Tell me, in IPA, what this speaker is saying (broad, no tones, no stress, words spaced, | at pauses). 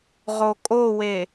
ʁokʼowe